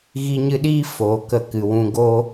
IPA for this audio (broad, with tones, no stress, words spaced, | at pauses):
ɣi˧ɲɨ˧ɗiː˦ foː˨kə˦˨ kɨ˨wũ˧ ɡoː˦